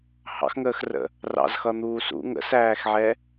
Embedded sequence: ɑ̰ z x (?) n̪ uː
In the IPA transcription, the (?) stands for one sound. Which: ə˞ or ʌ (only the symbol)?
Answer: ʌ